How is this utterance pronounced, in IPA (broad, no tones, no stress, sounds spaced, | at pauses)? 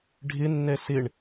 ɖʱ ɪ nː ɛ s ɪ ɳ